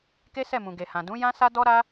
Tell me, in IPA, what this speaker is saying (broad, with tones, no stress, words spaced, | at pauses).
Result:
ke˦sɛ˦˨mũ˨ ɡe˨hã˨dũ˨˦ jã˦sa˦dɔ˦ ɾa˦